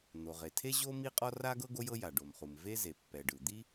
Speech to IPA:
n̪ o˩ ʁ e˩ tʰ e˥ ʑ o˥ m i˥ qʼ ɔ˥ r a˥ ɡ ɤ˥ ɡ o˥ j ɤ˥ j a˩ ɖ o˩ m χ u˩ m v e˥ z e˩ pː ɛ˩ ɖ ɯ˩ d̪ i˥

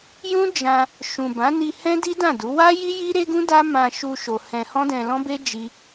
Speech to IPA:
j ũ˦ d͡ʒ ã˧ | ʃ ũ˨ b ã˨˦ n i˧ h ɛ̃˦ d i˦ d ã˦˨ d u˨˦ w a˦ j i˦ j i˦ ɾ e˦ ɡ ũ˦ d a˦ m ã˧ ʃ u˧ ʃ o˧ h ɛ̃˧ h ɔ̃˦ d ɛ̃˧ l ɔ̃˦ b e˦ d͡ʒ i˦

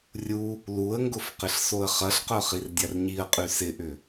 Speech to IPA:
rʲ u | l u ə̯ ŋ ɡ ʊ f q ɪ ɬ s o ə̯ χ ɐ ɬ q œ χ i r dʲ a r ɲ i ə̯ qʼ y s ɪ ʔ ʏ

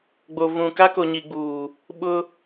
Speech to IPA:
ɡ͡b o˨ v ũ˨ k a˦ k o˨ ɲ i˨ ɡ͡b uː˨ | ɓ ʊ˦

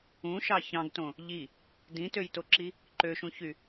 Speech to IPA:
ũ ʃ ɑ ç ɑ̃ ɡ t õ | ʎ i | d ĩ t ø j t o ǁ i | ǃ ø ʃ ũ ç y

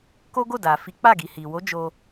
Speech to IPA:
k o˦ ɡ o˦˨ d a˨ f i˨˦ k͡p a˦˨ ɡ i˨ h i˨ w o˨˦ d͡ʒ o˧

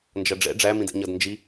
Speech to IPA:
n d͡ʒ ʌ ɖ͡ʐ ɛ̰ ɖ͡ʐ æ m ĩ d ɛ̰ ɲ ʌ d n d͡ʒ i

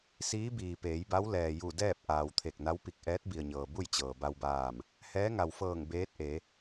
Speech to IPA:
s iː˧˥ b iː˩ p eː˩˧ j b a˧˥ w l ɛː˩ j u˧˩ d ɛː˥˨ p̚ ʔ aː˩ w t̪ʰ e˧˩ k̚ n a˧˥ w p i˧˩ k̚ ʔ ɛː˧˥ t̚ b i˩ ə̯ ɲ ɤː˩ b u˥˨ j t͡ɕ ɤː˩ b a˧ w b aː˧˩ m | h ɛː˧˥ ŋ a˩ w f ɤː˧˩ ŋ b eː˧˥ t̚ ʔ e˩˧

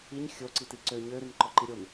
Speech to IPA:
i ɲ xʲ o ǀ i t i ǀ ø ɲ ø ɾ i n ǃ ɔ ǃ i ɾʲ o n

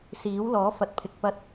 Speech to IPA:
s iː˨˥ w l ɔː˨˥ f ɐ˨ t̚ pʰ ɪ˨ k̚ p ɐ˧ t̚

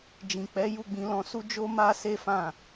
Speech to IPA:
d͡ʒ ĩ˨ k͡p ɛ˨˦ j u˦˨ ɡ͡b ĩ˧ l ɔ̃˧ s u˦ d͡ʒ o˦ m a˦ s e˦ f ã˦˨

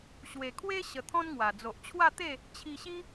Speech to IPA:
ɕ w e˨˩ kʰ w e˦ ɕ ə˧ t̪ʰ ɔ̃˦ n ŋ w a˨˩ d͡z o˨ ʔ t͡ɕʰ w a˥˧ t̪ e˥˧ | t͡ɕʰ i˧ ɕ i˦

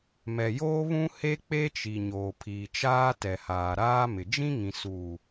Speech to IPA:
m ɛ˨ j oː˦ β ũ˦ h e˦ k͡p e˦ t͡ʃ i˨ ɲ oː˨ pʰ iː˨ t͡ʃ aː˦ t ɛ˨ h aː˨ ɾ aː˦ m ɪ˨ d͡ʒ ĩ˦ ŋ ĩ˨ s uː˨

